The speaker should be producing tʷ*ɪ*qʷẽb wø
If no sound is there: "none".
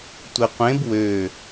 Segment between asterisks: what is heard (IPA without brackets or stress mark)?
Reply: ɪ